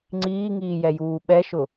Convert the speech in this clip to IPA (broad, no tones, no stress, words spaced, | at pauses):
ŋ͡ǀiːŋiːjɛjuː ɓɛʃʊ